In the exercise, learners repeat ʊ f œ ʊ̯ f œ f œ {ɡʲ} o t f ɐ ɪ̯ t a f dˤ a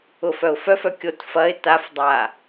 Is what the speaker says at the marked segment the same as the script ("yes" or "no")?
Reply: no